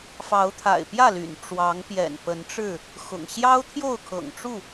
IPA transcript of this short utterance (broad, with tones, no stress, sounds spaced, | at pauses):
f ɑ˨˦ ʊ̯ t̪ʰ a̰˨˩ ɪ̯ p j ä˥˨ l y̰˨˩ n ʈ͡ʂ w ɑ˨˦ ŋ p j ɛ̰˨˩ n p ə˨˦ n ʈ͡ʂ ɻ̩˥˨ | x ʊ̰˨˩ ŋ ɕ j ɑ˦ ʊ̯ t̪ʰ j o˥˨ ʊ̯ kʰ ɤ̰˨˩ ŋ ʈ͡ʂ u˥˨